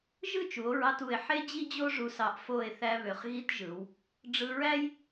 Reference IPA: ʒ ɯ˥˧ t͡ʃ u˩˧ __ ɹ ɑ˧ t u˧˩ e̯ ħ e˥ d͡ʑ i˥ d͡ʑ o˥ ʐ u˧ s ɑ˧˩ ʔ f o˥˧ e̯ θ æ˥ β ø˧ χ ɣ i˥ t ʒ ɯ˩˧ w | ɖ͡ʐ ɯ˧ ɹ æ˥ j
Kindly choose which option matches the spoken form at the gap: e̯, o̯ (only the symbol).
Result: o̯